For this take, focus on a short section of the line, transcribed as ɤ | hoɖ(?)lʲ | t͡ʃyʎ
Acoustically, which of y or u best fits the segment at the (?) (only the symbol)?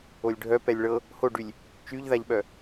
y